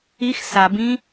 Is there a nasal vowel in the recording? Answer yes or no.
yes